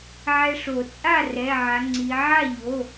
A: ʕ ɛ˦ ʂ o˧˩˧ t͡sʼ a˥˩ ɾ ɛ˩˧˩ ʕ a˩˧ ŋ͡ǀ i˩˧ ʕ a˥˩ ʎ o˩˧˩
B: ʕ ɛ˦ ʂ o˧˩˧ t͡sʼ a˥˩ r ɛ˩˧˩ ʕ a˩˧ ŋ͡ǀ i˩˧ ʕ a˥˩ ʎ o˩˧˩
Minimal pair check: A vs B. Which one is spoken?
B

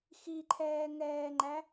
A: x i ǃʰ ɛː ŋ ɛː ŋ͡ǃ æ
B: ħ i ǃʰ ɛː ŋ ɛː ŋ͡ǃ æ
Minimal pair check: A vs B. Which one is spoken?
A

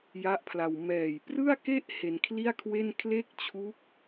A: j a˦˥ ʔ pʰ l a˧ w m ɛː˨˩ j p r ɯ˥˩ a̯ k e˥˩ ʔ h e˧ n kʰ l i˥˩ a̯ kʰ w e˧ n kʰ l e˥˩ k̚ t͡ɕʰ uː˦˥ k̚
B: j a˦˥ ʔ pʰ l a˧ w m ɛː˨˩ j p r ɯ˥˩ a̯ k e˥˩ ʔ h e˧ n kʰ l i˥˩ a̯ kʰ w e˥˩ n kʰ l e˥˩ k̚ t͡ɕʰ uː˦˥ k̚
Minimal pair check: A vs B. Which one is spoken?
B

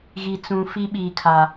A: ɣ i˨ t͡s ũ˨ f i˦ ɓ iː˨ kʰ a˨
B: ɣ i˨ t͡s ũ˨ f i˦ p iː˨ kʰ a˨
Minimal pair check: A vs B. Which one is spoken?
A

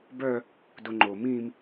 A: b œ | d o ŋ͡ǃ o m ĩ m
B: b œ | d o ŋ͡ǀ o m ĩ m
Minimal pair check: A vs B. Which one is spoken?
A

